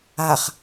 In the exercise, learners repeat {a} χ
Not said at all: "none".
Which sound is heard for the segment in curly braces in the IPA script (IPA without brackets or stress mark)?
a